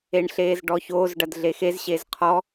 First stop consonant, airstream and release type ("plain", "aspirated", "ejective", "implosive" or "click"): plain